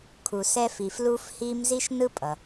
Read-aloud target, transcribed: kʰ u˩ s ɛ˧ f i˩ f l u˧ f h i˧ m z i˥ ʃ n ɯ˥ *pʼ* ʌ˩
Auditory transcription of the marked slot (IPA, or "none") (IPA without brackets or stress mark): pʼ